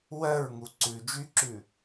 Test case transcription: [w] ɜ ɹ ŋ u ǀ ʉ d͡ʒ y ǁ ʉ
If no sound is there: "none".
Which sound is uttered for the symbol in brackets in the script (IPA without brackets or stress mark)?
w